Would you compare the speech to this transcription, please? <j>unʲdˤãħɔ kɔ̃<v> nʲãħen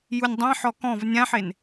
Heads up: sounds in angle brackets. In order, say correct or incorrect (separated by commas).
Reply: correct, correct